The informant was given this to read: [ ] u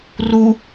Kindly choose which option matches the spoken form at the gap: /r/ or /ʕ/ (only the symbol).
r